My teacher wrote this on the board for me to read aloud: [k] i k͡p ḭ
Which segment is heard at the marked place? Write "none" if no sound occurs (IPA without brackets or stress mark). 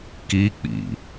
k